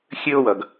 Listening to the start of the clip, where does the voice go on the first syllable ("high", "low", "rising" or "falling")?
high